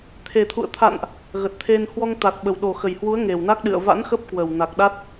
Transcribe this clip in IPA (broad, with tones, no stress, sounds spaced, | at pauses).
t̪ʰ e˨˩ t̪ʰ ṵ˧˨ ə̯ t̪ʰ a̰˧˨ n ʔ | ɣ ə˨˩ t̚ t̪ʰ e˧ n h w ɔ˧ ŋ t̪ a˨˩ t̚ ɓ ə˨˩ w ɗ o˨˩ x ə˨˩ j h w u˨˦ ə̯ ŋ e˨˩ w n a˦˥ k̚ ɗ ɨ̰˧˨ ə̯ v a̰˧˥ n x ə˦˥ p̚ k w ə˨˩ w n a˨˩ k̚ ɗ a˦˥ t̚